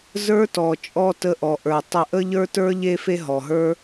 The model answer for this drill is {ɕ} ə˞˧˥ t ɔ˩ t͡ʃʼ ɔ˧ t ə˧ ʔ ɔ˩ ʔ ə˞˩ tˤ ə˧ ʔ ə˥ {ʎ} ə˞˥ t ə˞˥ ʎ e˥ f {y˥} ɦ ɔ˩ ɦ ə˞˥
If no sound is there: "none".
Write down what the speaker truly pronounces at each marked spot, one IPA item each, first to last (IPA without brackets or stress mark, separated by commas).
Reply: z, ʎ, e˥